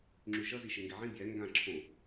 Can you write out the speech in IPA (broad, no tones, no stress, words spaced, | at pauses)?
ŋ͡ǁyʃʌ ziʃeŋɡɛʕĩ bjɛ ŋɡã ǁʰõ